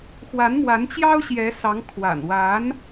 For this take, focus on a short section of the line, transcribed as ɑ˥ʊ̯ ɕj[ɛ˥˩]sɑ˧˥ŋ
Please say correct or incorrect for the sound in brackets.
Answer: incorrect: ɛ˧˥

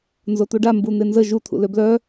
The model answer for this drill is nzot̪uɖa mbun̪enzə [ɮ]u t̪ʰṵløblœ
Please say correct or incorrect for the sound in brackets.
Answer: incorrect: ʒ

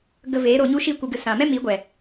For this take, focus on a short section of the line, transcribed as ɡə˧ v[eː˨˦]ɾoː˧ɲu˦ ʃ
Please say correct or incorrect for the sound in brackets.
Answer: correct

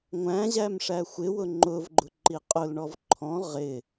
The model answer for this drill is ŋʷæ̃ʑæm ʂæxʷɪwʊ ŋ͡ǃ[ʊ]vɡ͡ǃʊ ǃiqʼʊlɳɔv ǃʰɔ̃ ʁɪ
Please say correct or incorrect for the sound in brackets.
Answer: correct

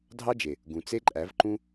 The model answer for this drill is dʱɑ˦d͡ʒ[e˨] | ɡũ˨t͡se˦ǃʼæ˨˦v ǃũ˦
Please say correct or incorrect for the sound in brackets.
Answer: correct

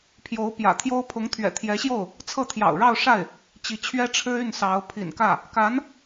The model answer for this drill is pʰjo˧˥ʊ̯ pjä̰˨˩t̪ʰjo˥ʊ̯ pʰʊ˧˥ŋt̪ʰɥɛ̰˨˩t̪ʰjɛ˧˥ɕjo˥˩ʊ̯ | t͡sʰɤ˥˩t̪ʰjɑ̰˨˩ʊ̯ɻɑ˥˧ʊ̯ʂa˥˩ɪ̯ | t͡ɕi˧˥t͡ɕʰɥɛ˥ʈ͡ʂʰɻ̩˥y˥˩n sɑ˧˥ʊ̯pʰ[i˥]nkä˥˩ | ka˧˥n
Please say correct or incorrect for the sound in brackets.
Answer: incorrect: ḭ˨˩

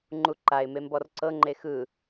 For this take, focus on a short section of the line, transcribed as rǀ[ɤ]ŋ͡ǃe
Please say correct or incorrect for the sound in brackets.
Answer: correct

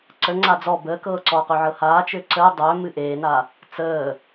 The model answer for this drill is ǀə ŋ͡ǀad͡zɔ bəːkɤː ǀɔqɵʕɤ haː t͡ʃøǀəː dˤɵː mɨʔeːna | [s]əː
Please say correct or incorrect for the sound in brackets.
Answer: incorrect: t͡s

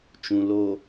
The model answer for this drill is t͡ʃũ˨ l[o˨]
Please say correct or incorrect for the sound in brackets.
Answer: correct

